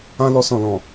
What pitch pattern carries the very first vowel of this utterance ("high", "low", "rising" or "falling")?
high